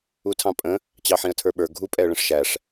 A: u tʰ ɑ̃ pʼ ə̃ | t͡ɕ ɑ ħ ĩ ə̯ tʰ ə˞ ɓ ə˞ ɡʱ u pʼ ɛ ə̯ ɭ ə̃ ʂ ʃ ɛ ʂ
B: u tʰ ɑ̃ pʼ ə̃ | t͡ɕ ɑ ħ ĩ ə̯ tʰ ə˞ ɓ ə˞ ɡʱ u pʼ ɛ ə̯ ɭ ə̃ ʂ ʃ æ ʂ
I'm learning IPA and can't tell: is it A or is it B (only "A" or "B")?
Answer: B